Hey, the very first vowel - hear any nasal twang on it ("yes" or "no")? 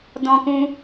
yes